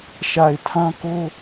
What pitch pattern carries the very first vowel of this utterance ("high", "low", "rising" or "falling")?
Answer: low